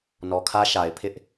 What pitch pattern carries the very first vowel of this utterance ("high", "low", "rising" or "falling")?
low